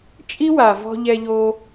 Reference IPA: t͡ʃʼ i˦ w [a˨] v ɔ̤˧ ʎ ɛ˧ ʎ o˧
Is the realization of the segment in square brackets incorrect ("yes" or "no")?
no